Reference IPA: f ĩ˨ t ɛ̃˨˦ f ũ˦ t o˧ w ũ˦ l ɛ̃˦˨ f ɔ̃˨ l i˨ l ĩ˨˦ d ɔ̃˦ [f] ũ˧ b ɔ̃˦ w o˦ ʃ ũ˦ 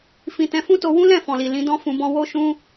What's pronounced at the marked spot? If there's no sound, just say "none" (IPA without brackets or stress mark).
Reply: f